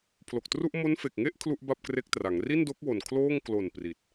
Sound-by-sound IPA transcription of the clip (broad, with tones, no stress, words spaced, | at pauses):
pʰlo˨˩k̚tru˥˩ʔ mo˦˥nfe˨˩k̚ŋe˥˩ʔ kʰlu˥˩ʔba˥˩p̚kre˦˥k̚tra˩˦ŋ ri˥˩ndo˦˥k̚wo˨˩n kʰloː˥˩ŋ klo˨˩n pri˨˩t̚